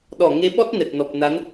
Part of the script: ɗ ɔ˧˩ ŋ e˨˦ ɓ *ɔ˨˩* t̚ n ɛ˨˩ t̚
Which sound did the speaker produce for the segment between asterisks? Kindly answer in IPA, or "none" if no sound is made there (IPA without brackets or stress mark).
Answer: ɔ˦˥